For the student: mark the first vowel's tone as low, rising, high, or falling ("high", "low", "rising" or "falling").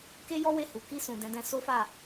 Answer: high